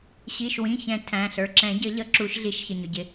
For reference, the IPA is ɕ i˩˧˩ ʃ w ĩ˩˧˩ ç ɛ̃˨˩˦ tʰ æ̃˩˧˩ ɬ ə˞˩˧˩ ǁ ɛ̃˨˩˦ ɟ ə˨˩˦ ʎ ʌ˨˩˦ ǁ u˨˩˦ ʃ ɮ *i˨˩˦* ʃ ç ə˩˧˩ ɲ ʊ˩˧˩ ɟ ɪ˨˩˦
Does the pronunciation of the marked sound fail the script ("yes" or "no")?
no